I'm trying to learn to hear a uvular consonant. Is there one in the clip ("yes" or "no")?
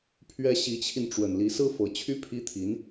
no